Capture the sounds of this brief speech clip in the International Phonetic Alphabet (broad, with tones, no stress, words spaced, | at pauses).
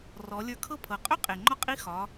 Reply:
rɔ˩˧ lʲə˞˧kʰɤ˥pʰɤ˩˧ qʼɵ˥ qʼe˩ŋ͡ǃɒ˧˥ qʼi˧˥ xɒ˩˧